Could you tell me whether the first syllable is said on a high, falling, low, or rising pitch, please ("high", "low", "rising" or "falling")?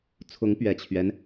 rising